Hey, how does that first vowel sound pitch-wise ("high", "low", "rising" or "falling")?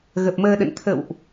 low